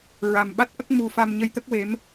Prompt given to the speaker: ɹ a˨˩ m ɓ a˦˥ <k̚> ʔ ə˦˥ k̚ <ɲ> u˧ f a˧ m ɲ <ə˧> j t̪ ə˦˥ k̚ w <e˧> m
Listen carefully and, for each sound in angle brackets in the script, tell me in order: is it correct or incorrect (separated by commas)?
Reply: incorrect, incorrect, correct, incorrect